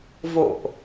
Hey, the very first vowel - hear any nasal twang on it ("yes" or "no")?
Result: no